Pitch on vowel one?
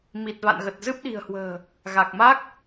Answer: low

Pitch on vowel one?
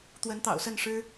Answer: rising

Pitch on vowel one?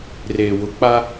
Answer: low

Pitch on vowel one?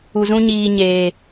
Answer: low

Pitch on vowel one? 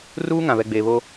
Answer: high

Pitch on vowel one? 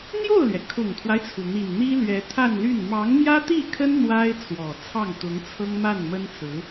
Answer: falling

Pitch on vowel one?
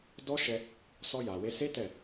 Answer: high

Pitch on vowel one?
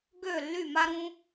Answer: falling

